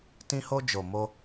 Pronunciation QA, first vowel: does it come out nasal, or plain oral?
nasal